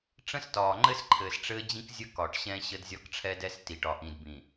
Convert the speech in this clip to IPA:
ʈ͡ʂ ə̃˦ s t ɒː˨ ŋ͡ǃ ɘ˦ s ǃʰ ɘː˨ s ʈ͡ʂ ɘː˦ d͡ʑ ĩ˦ k zʲ ə˦ k ɒ˨ ʈ ɕ ɛ̃˦ ɕ ə˦ d zʲ ɒ˦ k ʈ͡ʂʰ ɛ˦ d ɛ˦ s t i˨ ʈ ɒː˨ ʔ ĩ˨ d b ĩ˨

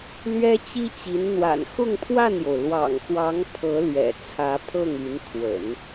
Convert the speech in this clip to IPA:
l ɥ ɛ˥ t͡ɕ i˥ t͡ɕ i˧˥ n n̪ w a̰˨˩ n x ʊ˥˧ ŋ pʰ w a˥˩ n j o˩ ʊ̯ l w ɑ̰˨˩ ŋ x w ɑ˧˥ ŋ pʰ ɤ˧˥ l ɥ ɛ̰˨˩ t͡sʰ ä˧˥ pʰ ɤ˥˩ ŋ y˧˥ n t̪ʰ w ə̰˨˩˦ n

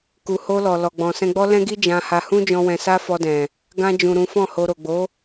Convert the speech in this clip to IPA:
k u˨ h o˧ l ɔ˨ l ɔ˨ ɡ͡b ɔ̃˨ s ɛ̃˧ ɡ͡b ɔ˦ l ɛ̃˦ ɡ i˦ d͡ʒ ã˧ h a˧ h ũ˦ d͡ʒ ɔ̃˧ w ɛ̃˧ s a˦ f ɔ˧ d ɛ̃˨ | ɡ ã˧ d͡ʒ ũ˨ ɾ ũ˨˦ f ɔ̃˦˨ h o˧ ɾ o˨ ɡ͡b o˨˦

